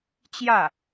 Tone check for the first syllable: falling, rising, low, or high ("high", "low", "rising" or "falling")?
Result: falling